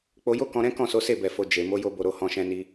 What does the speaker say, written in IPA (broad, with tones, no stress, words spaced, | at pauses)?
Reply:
k͡po˧jo˦kɔ̃˧ɾɛ̃˦ kɔ̃˦˨so˨˦ se˦˨bɛ˨fo˨ d͡ʒe˨ mo˨˦jo˧bo˨ɾo˨ hɔ̃˧ʃɛ̃˧ni˧